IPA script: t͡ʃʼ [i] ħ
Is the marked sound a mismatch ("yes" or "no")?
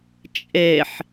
yes